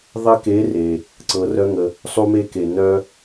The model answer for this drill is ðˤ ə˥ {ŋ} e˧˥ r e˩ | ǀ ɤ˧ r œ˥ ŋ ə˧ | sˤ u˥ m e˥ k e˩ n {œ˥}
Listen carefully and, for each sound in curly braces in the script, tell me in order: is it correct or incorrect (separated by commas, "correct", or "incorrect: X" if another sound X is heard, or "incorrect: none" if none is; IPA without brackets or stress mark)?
incorrect: k, correct